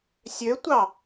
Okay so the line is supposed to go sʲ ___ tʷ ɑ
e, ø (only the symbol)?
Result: ø